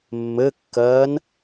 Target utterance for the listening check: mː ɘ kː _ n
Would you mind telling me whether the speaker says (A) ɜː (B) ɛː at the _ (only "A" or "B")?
A